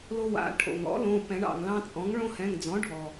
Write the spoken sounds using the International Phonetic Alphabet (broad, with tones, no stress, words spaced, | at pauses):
lo˦wa̰˩˧˩ ʈʰo̰˩ŋɔ̰˩˥lõ˩˧˩ pɛ̃˨˩˦ɳɑ̰˩ŋlɑ̃˦t͡sʼɔ̃˩˥ŋ ɭõ˦hɛ̃˩˧˩ŋd͡zɔ̃˩˥ ɖʱɔ˩